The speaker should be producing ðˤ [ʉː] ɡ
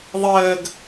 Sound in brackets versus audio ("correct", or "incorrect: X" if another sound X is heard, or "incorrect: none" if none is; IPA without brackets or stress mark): incorrect: əː